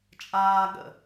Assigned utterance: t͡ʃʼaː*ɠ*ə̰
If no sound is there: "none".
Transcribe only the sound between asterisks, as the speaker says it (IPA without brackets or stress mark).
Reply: ɠ